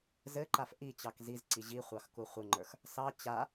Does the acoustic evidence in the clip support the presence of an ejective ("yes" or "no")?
no